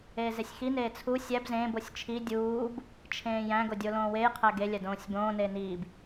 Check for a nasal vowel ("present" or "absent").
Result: present